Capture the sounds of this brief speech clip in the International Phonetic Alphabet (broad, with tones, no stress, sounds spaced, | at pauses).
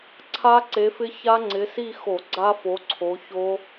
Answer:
ǀʰ a˦˥ ǀ e˨˦ f ɪ˦˥ ç a˦˥ ŋ͡ǀ ɪ˨˦ s i˥˧ x o˧˩˧ ɡ͡ǀ a˦˥ f o˨˦ ǀʰ o˨˦ ç o˦˥